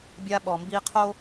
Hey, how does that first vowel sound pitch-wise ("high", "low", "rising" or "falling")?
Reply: high